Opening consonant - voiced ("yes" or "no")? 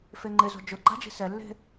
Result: no